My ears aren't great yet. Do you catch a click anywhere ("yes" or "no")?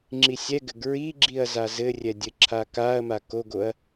yes